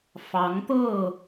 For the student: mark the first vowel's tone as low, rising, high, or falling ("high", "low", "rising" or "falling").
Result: rising